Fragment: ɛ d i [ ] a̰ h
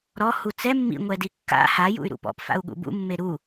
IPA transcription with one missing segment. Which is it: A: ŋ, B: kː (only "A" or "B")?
B